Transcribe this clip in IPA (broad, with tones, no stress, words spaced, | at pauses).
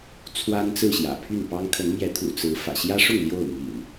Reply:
t͡sʰwa˦nt͡sɹ̩˥˨ɕjä̰˨˩ pʰy˥˨npɑ˦ŋ kʰə˨˦nmjɛ˨˦t̪ʰṵ˨˩ t͡sɹ̩˨˦ fä̰˨˩ɕjä˦ʂʊ˥˨ŋ ljo˥˨ʊ̯ mḭ˨˩n